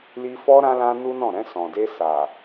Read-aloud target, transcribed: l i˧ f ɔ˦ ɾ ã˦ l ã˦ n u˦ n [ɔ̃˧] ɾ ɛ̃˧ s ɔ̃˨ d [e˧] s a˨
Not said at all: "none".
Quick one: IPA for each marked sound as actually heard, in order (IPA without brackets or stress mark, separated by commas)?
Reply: ɔ̃˦˨, e˧